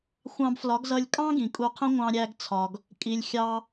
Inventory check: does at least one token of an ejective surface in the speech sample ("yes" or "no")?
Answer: yes